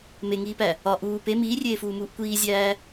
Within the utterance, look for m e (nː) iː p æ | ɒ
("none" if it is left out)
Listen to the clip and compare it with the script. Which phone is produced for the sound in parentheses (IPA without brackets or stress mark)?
ŋ